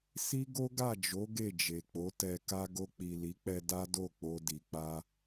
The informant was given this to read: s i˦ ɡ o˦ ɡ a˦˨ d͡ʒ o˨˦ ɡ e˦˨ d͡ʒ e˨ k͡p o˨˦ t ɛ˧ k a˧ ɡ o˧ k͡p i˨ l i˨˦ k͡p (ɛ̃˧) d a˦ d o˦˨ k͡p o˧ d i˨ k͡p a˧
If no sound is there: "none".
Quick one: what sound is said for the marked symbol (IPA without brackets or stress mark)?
ɛ˧